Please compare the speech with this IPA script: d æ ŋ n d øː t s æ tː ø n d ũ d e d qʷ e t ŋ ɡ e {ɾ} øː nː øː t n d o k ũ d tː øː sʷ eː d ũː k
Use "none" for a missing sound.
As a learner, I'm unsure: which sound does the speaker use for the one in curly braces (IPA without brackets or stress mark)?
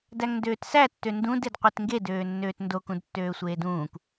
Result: d